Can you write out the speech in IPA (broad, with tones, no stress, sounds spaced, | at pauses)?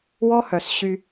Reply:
w ɔ˦ h œ˨ s ɕ y˧